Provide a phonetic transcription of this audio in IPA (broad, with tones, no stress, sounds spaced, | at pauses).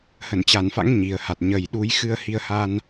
h ə˧˩ n t͡ɕ a˧˩ n f a̰˧˥ ŋ ɲ i˨˩ ə̯ h a˨˩ t̚ ɲ ə˨˩ j ɗ u˨˦ j x ɨ˧ ə̯ h i˧ ə̯ h a˧ n